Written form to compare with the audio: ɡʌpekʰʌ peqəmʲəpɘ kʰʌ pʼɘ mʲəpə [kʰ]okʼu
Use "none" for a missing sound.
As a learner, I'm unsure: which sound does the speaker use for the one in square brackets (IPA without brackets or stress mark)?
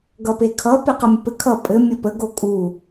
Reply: ɡ